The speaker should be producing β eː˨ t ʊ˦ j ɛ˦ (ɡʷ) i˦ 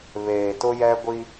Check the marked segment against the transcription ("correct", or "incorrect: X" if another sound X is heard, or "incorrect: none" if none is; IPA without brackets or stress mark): correct